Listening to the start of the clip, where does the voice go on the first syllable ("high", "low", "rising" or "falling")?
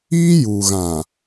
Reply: high